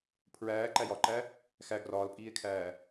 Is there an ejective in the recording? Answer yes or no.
yes